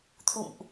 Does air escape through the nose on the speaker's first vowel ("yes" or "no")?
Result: no